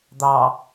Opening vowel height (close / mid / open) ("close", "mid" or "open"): open